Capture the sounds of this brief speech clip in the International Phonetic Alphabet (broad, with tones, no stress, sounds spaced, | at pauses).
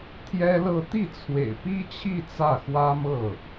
t̪ʰ j ɛ˥ l ɤ˥˧ t̪ i˥˩ t͡sʰ w ḛ˨˩ ɪ̯ p i˥ t͡ɕʰ i˥˧ t͡s ä˥˩ x w ä˥ m ɤ˥˩